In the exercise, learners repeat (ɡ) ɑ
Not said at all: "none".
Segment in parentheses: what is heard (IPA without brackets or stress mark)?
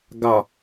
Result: ɡ